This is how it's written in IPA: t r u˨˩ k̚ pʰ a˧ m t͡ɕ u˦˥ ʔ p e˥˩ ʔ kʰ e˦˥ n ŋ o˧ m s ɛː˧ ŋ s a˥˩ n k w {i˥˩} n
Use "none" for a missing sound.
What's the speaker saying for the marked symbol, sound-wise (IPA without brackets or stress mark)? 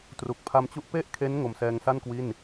i˥˩